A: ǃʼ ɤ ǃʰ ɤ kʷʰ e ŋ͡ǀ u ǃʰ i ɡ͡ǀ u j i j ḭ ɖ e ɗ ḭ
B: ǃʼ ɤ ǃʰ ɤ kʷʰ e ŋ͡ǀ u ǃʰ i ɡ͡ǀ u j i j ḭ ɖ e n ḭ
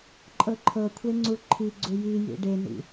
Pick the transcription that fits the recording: B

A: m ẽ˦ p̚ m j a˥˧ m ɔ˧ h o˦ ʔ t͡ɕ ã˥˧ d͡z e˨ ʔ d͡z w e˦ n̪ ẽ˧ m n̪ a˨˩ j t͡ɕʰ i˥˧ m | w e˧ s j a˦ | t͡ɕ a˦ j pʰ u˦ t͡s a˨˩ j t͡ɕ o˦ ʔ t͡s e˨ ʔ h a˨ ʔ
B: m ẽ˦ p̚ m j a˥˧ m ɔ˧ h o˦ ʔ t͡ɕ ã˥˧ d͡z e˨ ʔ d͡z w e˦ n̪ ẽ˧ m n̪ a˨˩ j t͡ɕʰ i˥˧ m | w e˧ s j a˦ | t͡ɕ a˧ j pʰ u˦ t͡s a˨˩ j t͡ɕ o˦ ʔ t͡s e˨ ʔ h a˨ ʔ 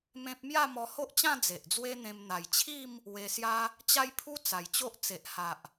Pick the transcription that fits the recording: A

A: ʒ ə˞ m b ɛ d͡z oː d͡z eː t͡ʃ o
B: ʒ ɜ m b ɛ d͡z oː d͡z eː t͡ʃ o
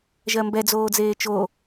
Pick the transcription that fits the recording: B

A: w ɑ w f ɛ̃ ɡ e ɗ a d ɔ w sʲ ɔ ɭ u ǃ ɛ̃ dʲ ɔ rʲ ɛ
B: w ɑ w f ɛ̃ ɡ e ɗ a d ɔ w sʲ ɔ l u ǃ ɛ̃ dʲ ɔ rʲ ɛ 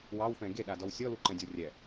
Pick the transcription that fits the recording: B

